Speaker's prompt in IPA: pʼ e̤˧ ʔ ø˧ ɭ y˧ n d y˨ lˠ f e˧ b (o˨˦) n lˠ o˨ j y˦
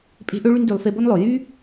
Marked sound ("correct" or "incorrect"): incorrect